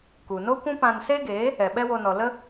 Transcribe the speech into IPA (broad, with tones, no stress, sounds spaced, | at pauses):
k u˨ n o˦ kʷ ũ˦ p ã˧ n s e˦ ɡ eː˨˦ | ɛ˨ ɓ ɛ˦ w o˧ n ɔ˨ l ə˦